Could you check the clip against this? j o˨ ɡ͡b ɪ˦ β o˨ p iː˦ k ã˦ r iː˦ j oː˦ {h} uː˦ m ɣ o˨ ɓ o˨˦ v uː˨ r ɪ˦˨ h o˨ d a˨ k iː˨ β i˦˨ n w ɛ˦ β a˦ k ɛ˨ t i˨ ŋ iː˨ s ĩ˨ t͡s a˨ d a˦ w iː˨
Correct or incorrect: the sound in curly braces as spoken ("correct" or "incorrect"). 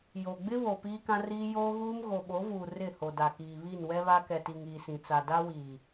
incorrect